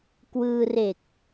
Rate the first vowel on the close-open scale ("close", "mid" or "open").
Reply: close